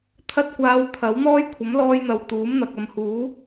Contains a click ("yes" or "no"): no